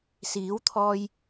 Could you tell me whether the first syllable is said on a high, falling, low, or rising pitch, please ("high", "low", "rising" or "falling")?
rising